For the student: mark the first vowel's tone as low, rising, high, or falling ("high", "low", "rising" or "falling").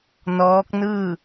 rising